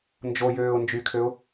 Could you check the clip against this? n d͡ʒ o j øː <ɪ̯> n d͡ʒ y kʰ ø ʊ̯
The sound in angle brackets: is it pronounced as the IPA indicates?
no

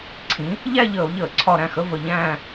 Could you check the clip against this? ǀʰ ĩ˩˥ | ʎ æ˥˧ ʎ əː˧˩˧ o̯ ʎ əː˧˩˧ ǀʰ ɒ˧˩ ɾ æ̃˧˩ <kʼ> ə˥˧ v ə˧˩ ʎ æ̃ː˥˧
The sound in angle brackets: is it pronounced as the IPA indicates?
no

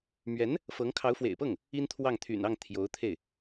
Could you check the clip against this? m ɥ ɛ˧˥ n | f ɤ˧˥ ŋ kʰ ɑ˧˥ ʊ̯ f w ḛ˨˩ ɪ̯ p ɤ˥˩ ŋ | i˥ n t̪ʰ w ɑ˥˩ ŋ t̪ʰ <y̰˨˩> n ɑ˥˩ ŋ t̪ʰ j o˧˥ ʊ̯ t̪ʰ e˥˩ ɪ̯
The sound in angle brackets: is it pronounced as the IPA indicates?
yes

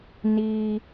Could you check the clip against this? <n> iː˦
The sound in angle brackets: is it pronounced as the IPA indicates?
yes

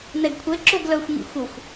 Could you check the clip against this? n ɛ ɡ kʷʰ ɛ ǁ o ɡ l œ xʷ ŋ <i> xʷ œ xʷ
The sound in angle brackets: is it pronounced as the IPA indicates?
no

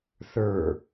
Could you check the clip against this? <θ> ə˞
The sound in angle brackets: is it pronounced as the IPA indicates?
yes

